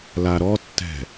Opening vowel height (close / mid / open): open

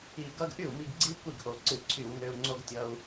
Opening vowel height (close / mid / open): close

